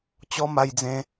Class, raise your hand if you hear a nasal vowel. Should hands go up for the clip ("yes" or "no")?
yes